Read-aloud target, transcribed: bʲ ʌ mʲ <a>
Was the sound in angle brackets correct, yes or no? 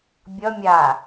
yes